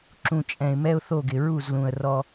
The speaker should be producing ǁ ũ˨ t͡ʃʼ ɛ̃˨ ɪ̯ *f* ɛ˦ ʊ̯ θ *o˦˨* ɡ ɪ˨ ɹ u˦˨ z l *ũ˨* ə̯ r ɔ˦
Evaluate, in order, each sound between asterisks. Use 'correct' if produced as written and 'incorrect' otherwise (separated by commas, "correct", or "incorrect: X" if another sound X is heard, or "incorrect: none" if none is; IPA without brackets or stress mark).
incorrect: m, correct, correct